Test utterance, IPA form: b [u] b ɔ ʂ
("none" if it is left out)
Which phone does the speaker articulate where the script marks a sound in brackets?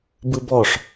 ɯ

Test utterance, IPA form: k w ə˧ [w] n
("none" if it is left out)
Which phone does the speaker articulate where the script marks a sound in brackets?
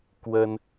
none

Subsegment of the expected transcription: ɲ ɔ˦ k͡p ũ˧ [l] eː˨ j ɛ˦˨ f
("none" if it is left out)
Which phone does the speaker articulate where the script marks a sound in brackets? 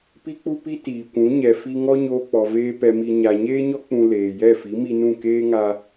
l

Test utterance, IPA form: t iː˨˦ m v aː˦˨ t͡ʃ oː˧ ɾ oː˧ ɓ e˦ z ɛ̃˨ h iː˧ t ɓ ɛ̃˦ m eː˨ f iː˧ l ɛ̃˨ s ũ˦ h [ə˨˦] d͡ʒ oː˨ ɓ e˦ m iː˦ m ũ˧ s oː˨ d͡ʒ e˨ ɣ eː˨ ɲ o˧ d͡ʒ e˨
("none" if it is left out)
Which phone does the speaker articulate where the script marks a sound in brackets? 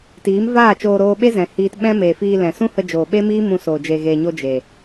ə˧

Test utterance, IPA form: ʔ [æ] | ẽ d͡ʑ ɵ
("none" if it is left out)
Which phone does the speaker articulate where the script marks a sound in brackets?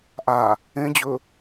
a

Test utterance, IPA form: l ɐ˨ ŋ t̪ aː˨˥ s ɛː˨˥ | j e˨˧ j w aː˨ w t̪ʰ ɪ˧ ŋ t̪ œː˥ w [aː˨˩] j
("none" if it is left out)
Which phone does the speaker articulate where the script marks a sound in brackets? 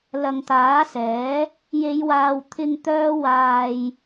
aː˨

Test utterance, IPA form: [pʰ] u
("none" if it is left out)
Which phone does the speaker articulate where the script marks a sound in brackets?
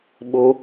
ɓ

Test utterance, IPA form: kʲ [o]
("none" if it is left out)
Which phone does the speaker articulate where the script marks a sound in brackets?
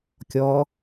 ɔ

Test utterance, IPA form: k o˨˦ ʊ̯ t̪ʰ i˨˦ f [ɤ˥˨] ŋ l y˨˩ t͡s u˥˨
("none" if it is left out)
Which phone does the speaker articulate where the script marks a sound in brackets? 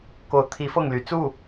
ɤ˥˨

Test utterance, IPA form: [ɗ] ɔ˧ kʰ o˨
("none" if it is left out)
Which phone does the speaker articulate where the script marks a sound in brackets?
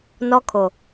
n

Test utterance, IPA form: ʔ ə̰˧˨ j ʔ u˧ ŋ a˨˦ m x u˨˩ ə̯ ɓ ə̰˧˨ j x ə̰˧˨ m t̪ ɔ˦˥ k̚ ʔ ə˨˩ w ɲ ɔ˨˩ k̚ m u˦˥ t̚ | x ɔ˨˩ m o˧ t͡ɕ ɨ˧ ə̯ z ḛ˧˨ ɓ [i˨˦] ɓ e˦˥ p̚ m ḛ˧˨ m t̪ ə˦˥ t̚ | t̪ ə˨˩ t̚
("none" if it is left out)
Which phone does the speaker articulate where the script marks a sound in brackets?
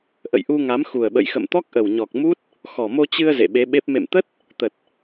e˨˦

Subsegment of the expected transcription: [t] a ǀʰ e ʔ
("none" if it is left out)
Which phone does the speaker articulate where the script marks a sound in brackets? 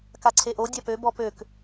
k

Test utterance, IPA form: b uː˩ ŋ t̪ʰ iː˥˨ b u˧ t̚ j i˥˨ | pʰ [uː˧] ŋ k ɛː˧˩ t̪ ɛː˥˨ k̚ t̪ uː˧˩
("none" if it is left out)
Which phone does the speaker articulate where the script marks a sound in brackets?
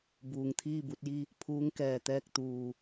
uː˧˥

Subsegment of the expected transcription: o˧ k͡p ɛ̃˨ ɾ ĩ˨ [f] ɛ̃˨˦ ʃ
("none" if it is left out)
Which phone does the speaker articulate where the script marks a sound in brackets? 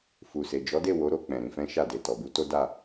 f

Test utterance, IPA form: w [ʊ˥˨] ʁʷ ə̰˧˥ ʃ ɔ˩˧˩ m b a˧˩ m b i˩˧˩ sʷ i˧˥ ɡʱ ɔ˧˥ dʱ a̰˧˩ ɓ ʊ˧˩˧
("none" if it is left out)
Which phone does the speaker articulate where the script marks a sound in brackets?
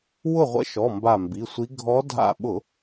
ʊ˥˨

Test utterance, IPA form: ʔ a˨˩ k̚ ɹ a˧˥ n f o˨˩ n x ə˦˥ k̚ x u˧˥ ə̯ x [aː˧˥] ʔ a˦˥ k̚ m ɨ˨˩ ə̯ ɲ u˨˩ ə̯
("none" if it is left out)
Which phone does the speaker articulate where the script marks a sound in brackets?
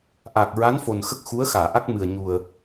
aː˨˩˨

